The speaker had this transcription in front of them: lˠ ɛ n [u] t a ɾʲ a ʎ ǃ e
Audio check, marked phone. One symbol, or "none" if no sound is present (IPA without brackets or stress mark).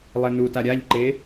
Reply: u